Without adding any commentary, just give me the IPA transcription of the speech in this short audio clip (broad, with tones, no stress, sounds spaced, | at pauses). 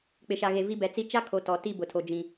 k͡p ɪ˨ ʃ a˨ ɣ e˨ v i˦ b ɛ˨˦ t͡s i˦ t͡ʃ a˦ kʰ o˨ t ɔ˨ t i˦˨ b ʊ˨ tʰ o˨ d͡ʒ ĩ˨